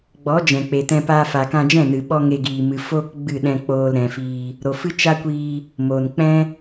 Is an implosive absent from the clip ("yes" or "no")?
no